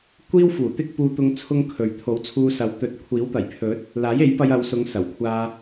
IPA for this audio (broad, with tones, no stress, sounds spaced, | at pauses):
kʷ iː˥ w f uː˨˩ t̪ ɪ˥ k̚ p uː˧ t̪ ʊ˧ ŋ t͡sʰ ʊ˥ ŋ kʰ ɵ˨ ɥ t̪ʰ o˨˥ w t͡sʰ uː˧ s ɐ˨˥ w t̪ ɵ˨ t̚ kʷʰ iː˨˥ w t̪ ɐ˨˩ j pʰ ɵ˨˥ t̚ | l aː˨˥ j e˨˥ j p ɐ˧ j ɐ˨˧ w s ʊ˨˧ ŋ s ɐ˨˩ w kʷʰ aː˧